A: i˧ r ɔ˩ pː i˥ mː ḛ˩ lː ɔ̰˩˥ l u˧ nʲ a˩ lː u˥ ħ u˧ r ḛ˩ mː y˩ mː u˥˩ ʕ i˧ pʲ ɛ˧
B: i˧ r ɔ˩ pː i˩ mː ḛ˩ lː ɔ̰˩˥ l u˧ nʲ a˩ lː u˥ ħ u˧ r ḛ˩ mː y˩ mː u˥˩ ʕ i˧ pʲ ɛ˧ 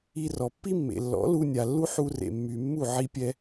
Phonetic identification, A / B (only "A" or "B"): A